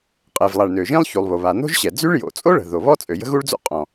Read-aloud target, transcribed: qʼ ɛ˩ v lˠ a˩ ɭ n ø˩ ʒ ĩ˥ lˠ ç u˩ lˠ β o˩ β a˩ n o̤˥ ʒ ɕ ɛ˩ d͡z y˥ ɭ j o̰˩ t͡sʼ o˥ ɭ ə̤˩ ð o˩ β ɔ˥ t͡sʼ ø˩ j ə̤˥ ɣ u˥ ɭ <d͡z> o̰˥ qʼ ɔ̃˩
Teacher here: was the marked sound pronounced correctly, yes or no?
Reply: yes